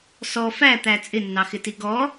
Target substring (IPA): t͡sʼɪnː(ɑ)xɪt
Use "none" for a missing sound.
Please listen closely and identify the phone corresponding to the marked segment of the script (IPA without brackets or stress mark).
ɑ